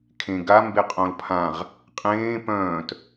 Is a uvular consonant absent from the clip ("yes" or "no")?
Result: no